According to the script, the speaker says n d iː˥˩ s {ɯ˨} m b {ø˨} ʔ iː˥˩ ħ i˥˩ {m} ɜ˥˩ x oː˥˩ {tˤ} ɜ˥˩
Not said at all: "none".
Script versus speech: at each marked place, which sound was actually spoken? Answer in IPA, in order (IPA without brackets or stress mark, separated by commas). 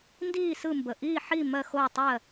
ɯ˥˩, ə˨, m, tˤ